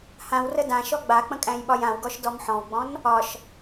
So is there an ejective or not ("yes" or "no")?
yes